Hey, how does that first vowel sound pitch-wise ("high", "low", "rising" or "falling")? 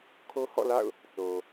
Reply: high